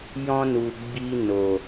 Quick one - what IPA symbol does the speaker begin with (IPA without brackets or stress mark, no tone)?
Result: j